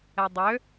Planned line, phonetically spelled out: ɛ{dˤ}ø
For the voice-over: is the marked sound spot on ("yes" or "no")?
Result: yes